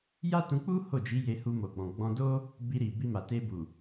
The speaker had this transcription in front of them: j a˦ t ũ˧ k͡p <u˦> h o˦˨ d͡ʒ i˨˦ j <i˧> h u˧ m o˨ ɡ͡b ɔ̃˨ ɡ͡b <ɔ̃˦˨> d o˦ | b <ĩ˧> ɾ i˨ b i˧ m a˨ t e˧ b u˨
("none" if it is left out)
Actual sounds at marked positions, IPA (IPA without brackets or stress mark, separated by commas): u˦, e˧, ɔ̃˧, i˧